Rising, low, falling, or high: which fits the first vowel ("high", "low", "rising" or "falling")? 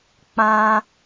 high